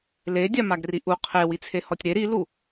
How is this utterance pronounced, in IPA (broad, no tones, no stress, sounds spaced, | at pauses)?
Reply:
l e dʲ a m a ɡ r i ʔ u qʰ e w i t͡sʰ e h ɔ tʲ ɾ e ɾ i l u